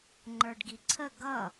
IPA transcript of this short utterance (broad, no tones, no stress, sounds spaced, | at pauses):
ŋ͡ǃ ə˞ ɖ ɡ i ǀʰ ə ɡ ʌ